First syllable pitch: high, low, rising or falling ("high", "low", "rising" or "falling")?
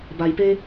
low